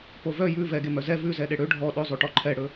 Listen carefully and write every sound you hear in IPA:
povœ jʉ vɛɡe mœzɛ vʉzɛ ɗeɽø ɖʱɔ ɗɵzˤʉʈɔ ǃʰɛɽɵ

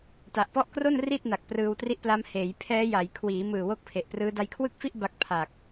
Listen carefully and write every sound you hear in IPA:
ta˨˩ʔpɔ˥˩ʔ kro˥˩n ri˥˩t̚na˨˩k̚ prɯː˧wtri˦˥ʔpla˦˥m heː˩˦j pʰɛː˦˥ja˩˦j kʰwiː˩˦mɯː˨˩ wo˥˩k̚pʰe˨˩ʔprɯː˦˥ da˧jkʰwɯ˥˩k̚fi˥˩ʔ ba˦˥k̚pʰa˨˩k̚

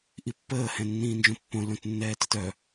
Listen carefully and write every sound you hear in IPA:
ʔipːəː hɛ̃nːĩːnd͡ʒõpːõ lõtnːɛːtətœ

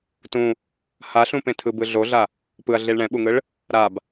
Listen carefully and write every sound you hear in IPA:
tũ | haɬũpẽtʰɯ bɯɮoɮa | pɯɐ̯ɮiɭ ɳɛ̃ɓuŋɯɭ | ɾab

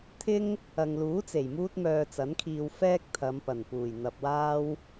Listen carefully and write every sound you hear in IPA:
t̪ʰɪ˥ŋ | ɐ˨ŋluː˨˥t͡se˨˩j muː˥t̚mœː˧t͡sɐ˨˥nkʰiː˧w fɛː˥k̚t̪ʰɐ˨˧m pɐ˨˩npuː˨˩j n̪ɐ˨p̚waː˥w

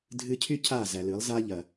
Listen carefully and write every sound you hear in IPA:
dʱɨ˧cʰy˦ cʰa˦˨zæ˨lɨ˨˦lˠ za˦ʎɐ˨

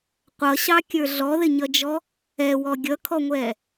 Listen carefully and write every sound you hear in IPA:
qʷʌɕɑkʲə˞ ɮɔðɪɲʌd͡ʒɔ | ɛwɔ ɡʲʌkʰɔŋʷɛ

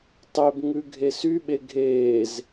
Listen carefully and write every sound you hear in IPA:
tˤebŋʉ ɡʱesyɓe ɡʱeːz

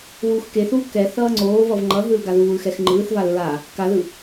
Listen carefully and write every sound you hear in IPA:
wuːxkeθuː kɛ θʌːŋ͡ǀoːvʌv ŋ͡ǃʌɦɯl ɡaðuːlxɛx ŋ͡ǃɯːθval ɹa | kaðɯ

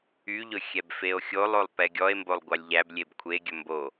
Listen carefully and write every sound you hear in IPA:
yʎɵ xʲɛbfeo̯xʲolˠolˠ pɛɡʲɔe̯mbolˠ ɡʷɑlʲʎæblʲeb kʷʰeɡʲɵ mbo

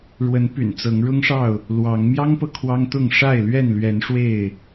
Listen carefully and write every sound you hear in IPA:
ɻwə˨˦n py̰˨˩nt͡sɤ˨˦ŋ ɻʊ˦ŋʂɑ˥˨ʊ̯ | lwɑ˨˦ŋ mjɑ˦ŋpɤ˨ kʰwɑ˦ŋt̪ʊ˥˨ŋ ʂa˥˨ɪ̯lɥɛ˥˨nlɥɛ˨˦n ʂwe˥˨ɪ̯

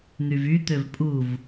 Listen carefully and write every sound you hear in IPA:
n̪yvyt̪øv pʼuv

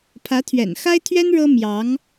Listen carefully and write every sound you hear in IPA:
pʰä˧˥t̪ʰɥɛ̰˨˩n xa˥ɪ̯t̪ʰɥɛ˥n ɻɤ˥mjɑ˧˥ŋ

